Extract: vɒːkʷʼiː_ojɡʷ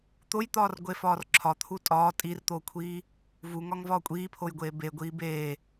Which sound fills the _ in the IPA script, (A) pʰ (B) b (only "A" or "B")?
A